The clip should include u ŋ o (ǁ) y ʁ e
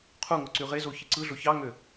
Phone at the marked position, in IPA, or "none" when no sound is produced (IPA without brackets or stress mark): ǀ